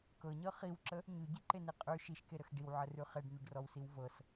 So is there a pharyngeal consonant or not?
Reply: yes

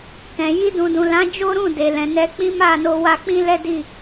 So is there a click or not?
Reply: no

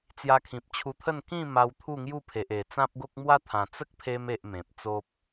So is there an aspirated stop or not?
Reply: yes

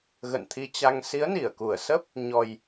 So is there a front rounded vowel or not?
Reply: no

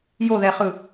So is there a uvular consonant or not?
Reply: yes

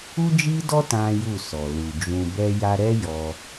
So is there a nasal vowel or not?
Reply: yes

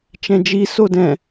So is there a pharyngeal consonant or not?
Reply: no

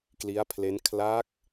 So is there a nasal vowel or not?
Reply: no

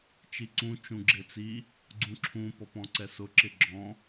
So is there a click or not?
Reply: yes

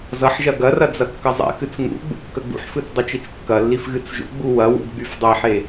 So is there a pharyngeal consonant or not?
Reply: yes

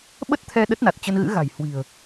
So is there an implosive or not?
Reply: yes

